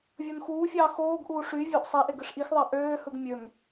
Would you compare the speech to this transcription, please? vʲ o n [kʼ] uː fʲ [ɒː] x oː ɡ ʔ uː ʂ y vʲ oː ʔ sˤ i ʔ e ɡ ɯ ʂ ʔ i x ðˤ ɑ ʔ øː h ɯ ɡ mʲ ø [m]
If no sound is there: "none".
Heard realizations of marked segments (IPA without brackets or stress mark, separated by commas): x, ɑː, m